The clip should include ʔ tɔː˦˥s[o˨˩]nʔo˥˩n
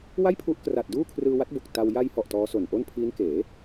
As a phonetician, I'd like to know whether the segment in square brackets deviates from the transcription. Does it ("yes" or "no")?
no